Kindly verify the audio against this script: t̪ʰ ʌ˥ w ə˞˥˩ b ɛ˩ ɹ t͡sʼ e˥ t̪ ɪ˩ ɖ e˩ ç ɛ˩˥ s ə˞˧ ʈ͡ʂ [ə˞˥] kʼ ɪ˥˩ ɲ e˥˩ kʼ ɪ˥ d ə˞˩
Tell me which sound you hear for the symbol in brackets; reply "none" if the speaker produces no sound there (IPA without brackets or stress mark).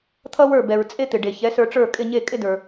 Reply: ə˞˥˩